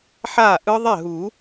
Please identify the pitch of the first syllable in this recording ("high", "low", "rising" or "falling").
falling